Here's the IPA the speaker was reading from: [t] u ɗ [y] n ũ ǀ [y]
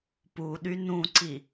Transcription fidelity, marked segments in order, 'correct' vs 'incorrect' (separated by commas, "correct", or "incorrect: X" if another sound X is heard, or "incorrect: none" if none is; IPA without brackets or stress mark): incorrect: p, correct, incorrect: i